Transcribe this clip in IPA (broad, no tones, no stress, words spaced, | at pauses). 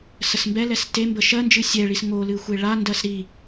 səsmbɛlɛs tembə ʃɜnd͡ʒɨ sʲɛɭis ŋolɨ xʷeɭandɜs ɾi